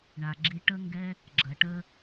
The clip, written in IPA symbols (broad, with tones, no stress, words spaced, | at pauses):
ɳa˨ɡ͡ǁi˧ ʈə˦ŋɡɛ˦ | ɡ͡ǁɐ˨ʈə˦